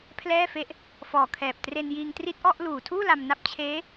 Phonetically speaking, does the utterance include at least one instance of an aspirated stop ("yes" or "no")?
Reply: yes